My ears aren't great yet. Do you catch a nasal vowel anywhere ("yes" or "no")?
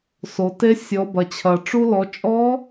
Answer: no